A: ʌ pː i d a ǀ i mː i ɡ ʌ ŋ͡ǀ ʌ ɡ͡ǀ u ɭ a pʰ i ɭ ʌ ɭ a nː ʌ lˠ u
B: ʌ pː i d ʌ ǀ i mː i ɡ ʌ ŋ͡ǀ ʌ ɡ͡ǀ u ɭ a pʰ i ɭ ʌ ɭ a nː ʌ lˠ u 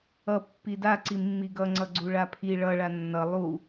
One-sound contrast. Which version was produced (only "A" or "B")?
A